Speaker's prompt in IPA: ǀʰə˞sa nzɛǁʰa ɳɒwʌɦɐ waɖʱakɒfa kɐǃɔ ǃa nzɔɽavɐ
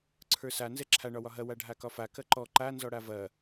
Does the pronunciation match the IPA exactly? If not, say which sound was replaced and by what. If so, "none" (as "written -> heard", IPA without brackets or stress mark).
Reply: ʌ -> ɒ